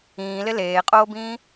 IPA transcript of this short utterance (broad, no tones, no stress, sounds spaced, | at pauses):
ĩː l ɪ l eː qʼ oː b ĩː